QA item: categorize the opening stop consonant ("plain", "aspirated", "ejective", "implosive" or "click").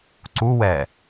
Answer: click